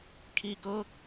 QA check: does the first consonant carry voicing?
no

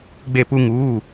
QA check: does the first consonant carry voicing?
yes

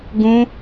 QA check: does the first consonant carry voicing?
yes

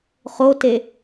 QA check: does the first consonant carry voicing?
no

